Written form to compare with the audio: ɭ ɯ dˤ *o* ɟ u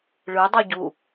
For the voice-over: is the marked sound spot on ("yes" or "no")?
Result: no